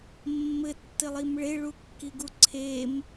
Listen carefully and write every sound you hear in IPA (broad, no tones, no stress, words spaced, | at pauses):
mːɘtːɘlˠim ɭeɭukːiɡu ǀʰem